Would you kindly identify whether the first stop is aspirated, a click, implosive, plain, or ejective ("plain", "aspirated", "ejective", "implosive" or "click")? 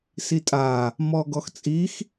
ejective